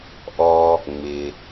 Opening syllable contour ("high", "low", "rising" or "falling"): low